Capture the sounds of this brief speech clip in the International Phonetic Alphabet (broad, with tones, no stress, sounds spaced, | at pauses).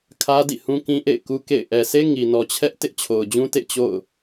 kʰ ä˦ d ḭ˦˨ h ũ˦ k ĩ˦ ʔ ḛ˦˨ ɪ̯ k u˦ k ḛ˦˨ ɪ̯ ʔ ɛ˨ s e˦ ŋ i˨ n ɔ˨ t͡ɕʰ ɛ˦ ʔ t ɪ˦ ʔ t͡ɕʰ o˨ ʊ̯ d͡ʑ ũ˦ t ḛ˦˨ t͡ɕ o̰˦˨ ʊ̯